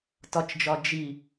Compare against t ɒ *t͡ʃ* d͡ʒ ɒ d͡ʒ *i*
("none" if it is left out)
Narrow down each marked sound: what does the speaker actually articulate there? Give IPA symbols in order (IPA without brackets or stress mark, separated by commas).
t͡ʃ, i